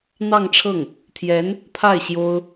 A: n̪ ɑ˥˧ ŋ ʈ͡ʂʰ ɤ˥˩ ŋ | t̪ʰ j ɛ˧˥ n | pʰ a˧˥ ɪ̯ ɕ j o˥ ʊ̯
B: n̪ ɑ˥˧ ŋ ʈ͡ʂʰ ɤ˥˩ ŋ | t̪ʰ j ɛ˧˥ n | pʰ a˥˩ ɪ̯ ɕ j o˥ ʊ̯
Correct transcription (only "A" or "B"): B